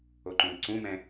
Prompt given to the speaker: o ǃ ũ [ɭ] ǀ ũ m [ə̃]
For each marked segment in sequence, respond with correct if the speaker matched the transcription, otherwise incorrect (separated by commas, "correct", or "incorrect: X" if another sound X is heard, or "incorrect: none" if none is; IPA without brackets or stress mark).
incorrect: l, incorrect: ɛ̃